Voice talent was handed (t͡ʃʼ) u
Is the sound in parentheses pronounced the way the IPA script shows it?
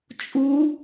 yes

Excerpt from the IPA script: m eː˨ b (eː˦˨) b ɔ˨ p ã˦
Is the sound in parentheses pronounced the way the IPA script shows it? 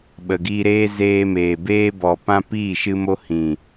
no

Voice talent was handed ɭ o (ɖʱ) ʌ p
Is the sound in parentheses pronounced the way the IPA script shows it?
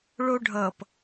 yes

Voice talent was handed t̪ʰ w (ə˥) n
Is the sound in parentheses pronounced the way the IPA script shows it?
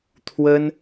yes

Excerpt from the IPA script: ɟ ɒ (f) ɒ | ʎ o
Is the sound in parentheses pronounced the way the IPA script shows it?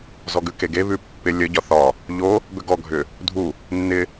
no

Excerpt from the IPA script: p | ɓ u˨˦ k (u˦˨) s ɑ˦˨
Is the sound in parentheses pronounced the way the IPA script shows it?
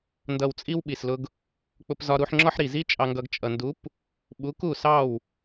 yes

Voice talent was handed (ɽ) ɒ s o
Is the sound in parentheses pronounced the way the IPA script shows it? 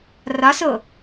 no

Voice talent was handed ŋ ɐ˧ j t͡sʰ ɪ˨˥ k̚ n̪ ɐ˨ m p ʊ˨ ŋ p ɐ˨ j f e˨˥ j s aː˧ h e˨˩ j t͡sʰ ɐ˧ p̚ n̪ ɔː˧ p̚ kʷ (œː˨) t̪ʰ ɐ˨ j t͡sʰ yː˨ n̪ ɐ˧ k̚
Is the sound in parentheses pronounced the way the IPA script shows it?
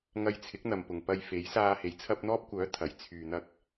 no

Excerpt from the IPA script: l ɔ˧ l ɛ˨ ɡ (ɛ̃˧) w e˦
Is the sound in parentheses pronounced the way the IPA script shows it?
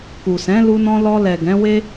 no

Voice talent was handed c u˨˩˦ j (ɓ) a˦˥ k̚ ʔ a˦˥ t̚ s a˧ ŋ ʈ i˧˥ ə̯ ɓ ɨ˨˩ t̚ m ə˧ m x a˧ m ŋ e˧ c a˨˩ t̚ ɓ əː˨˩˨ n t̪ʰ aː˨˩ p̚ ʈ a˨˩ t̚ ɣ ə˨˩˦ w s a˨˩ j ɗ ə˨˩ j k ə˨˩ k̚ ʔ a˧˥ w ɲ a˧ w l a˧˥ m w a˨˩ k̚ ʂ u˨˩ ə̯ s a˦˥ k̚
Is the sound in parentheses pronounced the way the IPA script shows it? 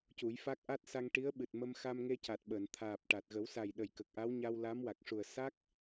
no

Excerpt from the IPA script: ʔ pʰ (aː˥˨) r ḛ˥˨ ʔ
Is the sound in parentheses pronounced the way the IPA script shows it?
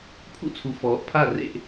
no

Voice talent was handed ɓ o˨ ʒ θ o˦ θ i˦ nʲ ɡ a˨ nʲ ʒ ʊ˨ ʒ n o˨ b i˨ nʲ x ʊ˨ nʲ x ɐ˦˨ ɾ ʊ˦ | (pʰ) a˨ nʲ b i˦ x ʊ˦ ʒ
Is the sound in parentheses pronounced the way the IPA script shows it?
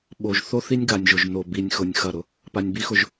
no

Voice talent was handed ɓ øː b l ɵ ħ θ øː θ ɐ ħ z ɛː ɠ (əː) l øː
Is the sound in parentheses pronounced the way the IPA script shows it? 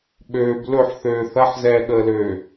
yes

